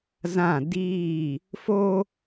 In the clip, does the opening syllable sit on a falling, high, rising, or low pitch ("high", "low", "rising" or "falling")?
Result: falling